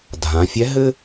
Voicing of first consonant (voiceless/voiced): voiced